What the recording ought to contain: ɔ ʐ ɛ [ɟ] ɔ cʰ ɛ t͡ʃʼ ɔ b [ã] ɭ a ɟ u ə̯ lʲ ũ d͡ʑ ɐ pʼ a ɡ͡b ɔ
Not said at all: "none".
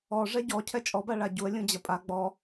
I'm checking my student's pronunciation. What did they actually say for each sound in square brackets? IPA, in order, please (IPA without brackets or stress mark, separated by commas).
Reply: ɟ, a